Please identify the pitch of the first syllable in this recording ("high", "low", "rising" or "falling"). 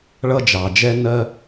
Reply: high